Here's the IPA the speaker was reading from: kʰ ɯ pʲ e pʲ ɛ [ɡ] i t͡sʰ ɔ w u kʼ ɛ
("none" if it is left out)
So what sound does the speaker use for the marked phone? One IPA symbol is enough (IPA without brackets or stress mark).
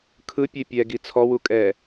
ɡ